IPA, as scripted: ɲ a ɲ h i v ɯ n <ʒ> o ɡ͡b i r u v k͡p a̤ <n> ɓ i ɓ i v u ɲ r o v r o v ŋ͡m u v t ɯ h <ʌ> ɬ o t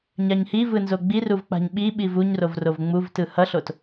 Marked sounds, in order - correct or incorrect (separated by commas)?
incorrect, incorrect, correct